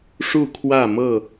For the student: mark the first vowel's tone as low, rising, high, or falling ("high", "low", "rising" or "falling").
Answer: falling